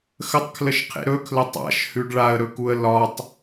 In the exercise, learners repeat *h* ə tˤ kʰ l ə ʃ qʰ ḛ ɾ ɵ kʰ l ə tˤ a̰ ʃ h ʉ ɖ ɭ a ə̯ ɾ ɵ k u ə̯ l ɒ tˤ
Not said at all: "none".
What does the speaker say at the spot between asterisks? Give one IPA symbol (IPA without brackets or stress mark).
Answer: x